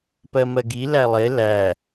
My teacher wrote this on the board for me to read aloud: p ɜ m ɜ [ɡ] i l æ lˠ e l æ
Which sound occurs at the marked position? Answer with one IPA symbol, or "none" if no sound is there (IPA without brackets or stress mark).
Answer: ɡ